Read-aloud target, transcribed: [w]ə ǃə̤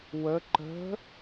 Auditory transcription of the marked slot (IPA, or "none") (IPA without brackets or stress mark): w